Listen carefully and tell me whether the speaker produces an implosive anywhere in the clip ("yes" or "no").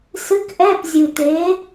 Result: no